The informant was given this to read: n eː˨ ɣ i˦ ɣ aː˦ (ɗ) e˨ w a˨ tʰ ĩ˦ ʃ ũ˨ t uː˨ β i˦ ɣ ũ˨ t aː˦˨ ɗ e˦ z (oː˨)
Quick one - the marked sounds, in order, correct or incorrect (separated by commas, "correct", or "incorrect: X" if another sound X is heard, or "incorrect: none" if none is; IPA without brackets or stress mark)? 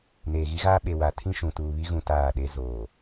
incorrect: ɓ, correct